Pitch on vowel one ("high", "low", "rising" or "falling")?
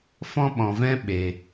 high